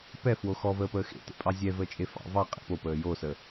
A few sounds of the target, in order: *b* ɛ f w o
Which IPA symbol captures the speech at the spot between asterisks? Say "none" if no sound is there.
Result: p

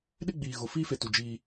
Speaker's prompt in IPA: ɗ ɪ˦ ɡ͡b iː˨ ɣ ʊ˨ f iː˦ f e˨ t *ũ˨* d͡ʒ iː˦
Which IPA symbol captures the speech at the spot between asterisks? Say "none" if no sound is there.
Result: u˨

